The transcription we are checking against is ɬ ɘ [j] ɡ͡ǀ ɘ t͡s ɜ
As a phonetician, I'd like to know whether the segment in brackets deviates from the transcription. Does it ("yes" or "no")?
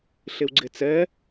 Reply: yes